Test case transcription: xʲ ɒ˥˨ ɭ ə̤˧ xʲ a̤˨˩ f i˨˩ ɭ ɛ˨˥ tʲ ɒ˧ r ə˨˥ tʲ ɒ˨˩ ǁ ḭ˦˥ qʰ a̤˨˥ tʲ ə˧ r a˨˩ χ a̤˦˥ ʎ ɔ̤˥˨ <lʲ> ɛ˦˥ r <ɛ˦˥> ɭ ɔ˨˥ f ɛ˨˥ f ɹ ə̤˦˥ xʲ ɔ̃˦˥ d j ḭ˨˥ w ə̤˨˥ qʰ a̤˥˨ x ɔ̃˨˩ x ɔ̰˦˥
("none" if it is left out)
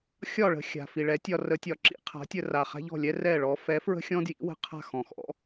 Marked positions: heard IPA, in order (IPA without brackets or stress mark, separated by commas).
lʲ, ɛ˥˨